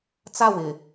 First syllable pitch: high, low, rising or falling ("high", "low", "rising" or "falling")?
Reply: falling